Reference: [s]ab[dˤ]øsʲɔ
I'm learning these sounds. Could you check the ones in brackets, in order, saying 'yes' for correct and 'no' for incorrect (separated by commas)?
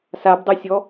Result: yes, yes